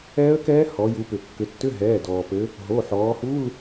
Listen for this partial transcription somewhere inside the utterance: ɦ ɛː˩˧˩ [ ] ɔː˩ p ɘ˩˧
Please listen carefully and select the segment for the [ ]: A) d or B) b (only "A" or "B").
A